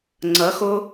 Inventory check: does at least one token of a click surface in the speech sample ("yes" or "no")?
yes